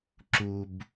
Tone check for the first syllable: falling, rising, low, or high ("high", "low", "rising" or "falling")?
low